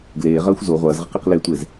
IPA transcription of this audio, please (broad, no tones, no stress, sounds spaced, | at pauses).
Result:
ɡ l eː ʁ ɐː xʷ z o ʁʷ ɐː z ʁ ɘ q i q l e tʷ e z